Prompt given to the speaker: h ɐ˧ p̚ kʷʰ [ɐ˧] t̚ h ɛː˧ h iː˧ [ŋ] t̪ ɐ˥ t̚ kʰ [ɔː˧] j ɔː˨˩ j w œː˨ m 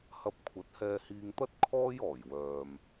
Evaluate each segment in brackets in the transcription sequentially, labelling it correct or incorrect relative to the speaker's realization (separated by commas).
incorrect, correct, incorrect